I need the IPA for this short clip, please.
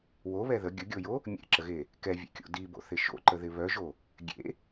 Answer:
w o β ɛ ð ə ɡʲ ə ɡʲ o j o | mʲ ḛ ǁ ə ɣ e | k ɛ vʲ ḛ kʲ o̰ d i b o̰ θ ɪ ʃ o̰ ǃ ə ð ɪ β œ ʒ o | ɡʲ ḛ

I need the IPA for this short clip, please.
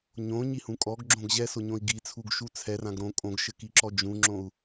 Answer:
ɲ õ ɲ i h ũ kʼ ɔ ɡ ɡ͡ǁ õ ɡ ʑ ɛ s o ɲ õ i̯ ɡ i t͡sʰ u ɡ ʃ u t͡sʰ ɛ r ã ɡ ɾ õ kʼ õ ɡ ʃ ɘ k i ǁ ɔ d͡ʒ ũ ŋ͡ǁ õ u̯

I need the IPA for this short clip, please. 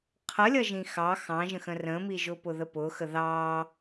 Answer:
qʰ ʌ lʲ ʌ ʒ ĩ x ɑ x ɑ̃ ʒ ə̃ x ə̃ r ə̃ m i ʒ ʊ p ʊ ð ə p ʊ x ə ð ɑ

